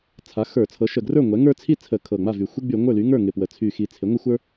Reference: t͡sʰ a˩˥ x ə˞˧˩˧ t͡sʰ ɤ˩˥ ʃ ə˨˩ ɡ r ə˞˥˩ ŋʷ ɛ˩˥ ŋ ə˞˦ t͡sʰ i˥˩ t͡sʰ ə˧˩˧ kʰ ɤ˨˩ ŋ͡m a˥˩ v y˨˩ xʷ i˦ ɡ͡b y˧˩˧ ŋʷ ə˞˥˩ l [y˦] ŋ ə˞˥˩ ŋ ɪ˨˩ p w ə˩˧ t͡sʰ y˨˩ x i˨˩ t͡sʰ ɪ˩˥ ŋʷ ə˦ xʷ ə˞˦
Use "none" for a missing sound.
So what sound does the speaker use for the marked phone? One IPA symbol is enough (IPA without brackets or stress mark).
y˩˥